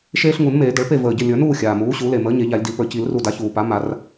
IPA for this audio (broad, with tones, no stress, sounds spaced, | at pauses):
ʃ eː˦ ɬ ŋ u˨˩˦ n m eː˨˩˦ d ə˩˥ ɭ p e˥˨ v əː˧˩ ɟ ə˥˨ lʲ ə˞˨˩˦ n uː˥˨ xʲ aː˩ m uː˩˥ ɕ u˩˥ l e˧˩ m əː˩˥ ɲ e˨˩˦ ʎ a˨˩˦ lʲ d i˨˩˦ p ə˞˧˩ c i˨˩˦ l r u˧˩ d a˩˥ ç uː˩ p a˩˥ m a˨˩˦ r